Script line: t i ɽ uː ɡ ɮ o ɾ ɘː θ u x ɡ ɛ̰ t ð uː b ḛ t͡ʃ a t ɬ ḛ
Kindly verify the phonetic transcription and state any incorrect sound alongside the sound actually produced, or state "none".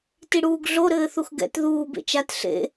none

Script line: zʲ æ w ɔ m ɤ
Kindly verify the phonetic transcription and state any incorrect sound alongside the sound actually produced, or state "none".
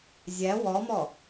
ɤ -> ɔ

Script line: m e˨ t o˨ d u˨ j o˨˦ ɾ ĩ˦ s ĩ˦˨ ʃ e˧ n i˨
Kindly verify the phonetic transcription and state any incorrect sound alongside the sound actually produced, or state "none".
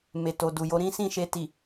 n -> t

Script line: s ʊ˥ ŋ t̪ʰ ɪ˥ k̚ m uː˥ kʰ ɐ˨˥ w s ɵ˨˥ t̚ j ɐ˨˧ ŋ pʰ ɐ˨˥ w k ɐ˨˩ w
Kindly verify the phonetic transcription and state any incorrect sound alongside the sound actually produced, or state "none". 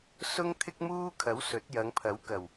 none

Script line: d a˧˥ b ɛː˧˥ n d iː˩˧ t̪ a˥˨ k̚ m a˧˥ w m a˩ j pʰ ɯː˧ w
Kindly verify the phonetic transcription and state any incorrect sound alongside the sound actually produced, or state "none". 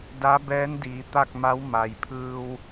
none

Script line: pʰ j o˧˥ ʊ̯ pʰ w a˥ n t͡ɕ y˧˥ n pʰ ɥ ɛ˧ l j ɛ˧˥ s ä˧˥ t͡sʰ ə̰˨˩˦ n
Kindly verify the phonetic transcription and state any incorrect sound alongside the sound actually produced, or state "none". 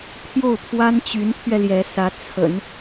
o˧˥ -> o˥˩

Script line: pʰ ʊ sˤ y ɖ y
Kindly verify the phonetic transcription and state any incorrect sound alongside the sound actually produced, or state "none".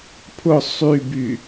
ɖ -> b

